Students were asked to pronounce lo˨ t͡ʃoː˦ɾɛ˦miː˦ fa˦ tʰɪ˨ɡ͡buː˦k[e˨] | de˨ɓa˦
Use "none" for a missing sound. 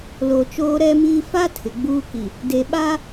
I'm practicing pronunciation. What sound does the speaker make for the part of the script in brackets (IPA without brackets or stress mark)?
i˨